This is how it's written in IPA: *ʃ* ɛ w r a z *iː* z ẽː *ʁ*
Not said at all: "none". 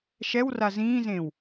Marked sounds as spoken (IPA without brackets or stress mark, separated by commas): ʃ, ĩː, w